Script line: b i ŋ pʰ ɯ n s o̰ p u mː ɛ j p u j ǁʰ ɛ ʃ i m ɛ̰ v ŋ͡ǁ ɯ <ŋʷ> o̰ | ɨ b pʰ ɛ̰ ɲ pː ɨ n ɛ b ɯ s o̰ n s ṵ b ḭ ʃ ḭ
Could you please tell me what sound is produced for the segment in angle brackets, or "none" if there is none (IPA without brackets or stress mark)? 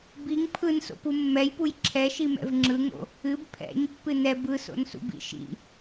ŋ